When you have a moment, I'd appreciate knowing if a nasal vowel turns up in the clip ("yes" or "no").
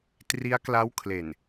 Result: no